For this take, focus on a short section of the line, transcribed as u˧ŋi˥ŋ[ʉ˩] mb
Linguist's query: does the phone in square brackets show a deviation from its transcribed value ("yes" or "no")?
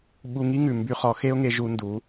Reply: no